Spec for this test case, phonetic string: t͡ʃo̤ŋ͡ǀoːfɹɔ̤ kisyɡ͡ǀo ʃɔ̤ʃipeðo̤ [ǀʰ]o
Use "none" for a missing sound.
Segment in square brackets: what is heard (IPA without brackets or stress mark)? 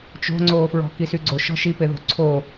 ǀʰ